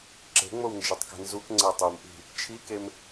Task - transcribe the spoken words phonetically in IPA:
ǁe̤ŋ͡mownd͡ʒetˤke̤ nzukŋ͡ǀɛ tˤumʔi̤ | t͡ʃʰikem

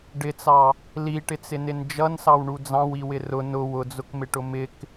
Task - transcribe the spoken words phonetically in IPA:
ɖɪt͡sɑ | liʈɪt͡sɪnɪn d͡ʒʌnsɑwɳu d͡zɑ̃wiwɪ rʊ nʊ wʊd͡zʊkmɪʈʊ mɪk

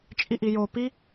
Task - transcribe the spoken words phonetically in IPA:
t͡ʃʼiʔijo pi

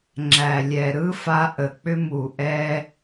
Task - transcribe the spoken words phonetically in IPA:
ŋ͡ǁæ˨lʲɛ˨ ɾɯ˦fa˧ ʔə˨ k͡pʏ˧mu˨ʔɛ˧

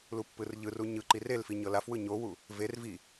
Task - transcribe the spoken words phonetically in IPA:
lupːɯrʎɯru ɲɯǃi relfi ɲɤlafwɯ ɲowu | ver vi

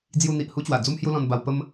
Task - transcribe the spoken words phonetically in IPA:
d͡zju˧n̪i˨ʔ hu˦t͡ɕwa˨˩ d͡zu˦mhju˦ lɔ̃˧nba˧w pə˦m

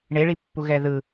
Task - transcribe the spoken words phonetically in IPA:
ɳeɭipːuɣɛ ðɯ

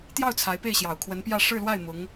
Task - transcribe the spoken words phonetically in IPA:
t̪jɑ˥˩ʊ̯ t͡sʰa˧˥ɪ̯ pe˥˩ɪ̯ɕjɑ˨˩ʊ̯kʰwə˧˥npjä˥˧ ʂɻ̩˥˧lwa˥˩ɪ̯ mʊ˧˥ŋ

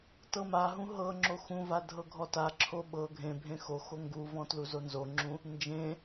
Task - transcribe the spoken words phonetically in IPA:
tɤmaɦũ ɦɤ ŋ͡ǁoxũva dʱɤɡʱɔtaǁʰo ɓɤ ɡʱẽbʱẽ xoxo ŋɡuvɔ̃ tluzonzoŋ͡ǁũ | nd͡ʒẽ

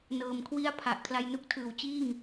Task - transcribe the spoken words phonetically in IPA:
nɤː˨˩mkʰwi˥˩a̯ pʰa˨˩ʔkʰla˧jnu˥˩k̚tʰɯː˩˦w t͡ɕiː˥˩ŋ

